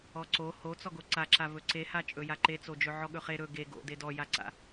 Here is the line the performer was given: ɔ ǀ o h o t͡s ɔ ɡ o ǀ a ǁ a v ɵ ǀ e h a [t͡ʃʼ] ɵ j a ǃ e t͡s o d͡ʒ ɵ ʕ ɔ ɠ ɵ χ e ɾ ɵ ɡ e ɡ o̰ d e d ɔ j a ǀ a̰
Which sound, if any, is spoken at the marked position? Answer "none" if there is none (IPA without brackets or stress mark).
t͡ʃʼ